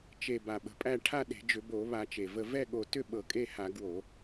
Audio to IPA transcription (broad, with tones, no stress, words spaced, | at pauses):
t͡ʃe˧˩ ba˧˩ɓə̤˧˩pʼæ˥˨ ʈʰa˥˨ɗe̤˧˩˧ d͡ʒʏ˧˩˧bo˧˩˧βa˧˩˧ t͡ʃe˧˩və˥˨ vɛ˥˨ɠo˧˩tʏ˥˨ ɓɤ˧˩˧kʼe˥˨ha˧˩˧ ɡwo˧˩˧